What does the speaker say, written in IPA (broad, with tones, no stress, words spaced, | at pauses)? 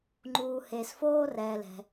ŋ͡ǃuː˩he˩s foː˧rɛː˩lɛ̤˩